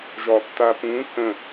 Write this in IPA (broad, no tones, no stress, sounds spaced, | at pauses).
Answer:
ʒ ɒ tː a p ũ k ə̃